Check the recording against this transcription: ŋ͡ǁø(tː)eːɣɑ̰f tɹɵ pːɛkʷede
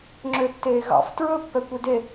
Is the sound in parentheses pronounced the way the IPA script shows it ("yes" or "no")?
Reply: yes